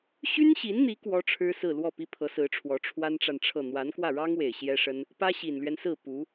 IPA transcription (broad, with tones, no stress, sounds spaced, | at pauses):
ɕ y˥ n ɕ i˧˥ n n̪ i˧˥ k w ɔ˥ ʈ͡ʂʰ ɻ̩˥ s ɹ̩˥˧ l w ɔ˥˩ p i˥ pʰ ɤ˧˥ s ɹ̩˧˥ ʈ͡ʂʰ w ɔ˧˥ ʈ͡ʂʰ w a˥ n ʈ͡ʂ a˨ n ʈ͡ʂʰ ɤ˥˩ n̪ w a˧˥ n k w ä˥˩ ɻ ɑ˥ ŋ w e˨˩ ɪ̯ ɕ j ɛ˥ ʂ ə˥ n | p ä˥ ɕ i˨˩ n l ɥ ɛ˦ n s ɹ̩˥˩ p u˧˥